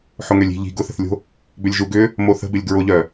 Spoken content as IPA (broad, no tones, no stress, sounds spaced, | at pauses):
ħ ʊ ŋ ø lʲ i̤ ʎ i̤ ɡ ʊ θ ə̤ θ lʲ o̤ | b ʏ lʲ ʒ u ɡ ʏ | m o θ ə̤ b ɪ lʲ ɡ ɹ ʊ ʎ œ